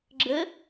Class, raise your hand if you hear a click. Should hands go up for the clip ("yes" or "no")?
yes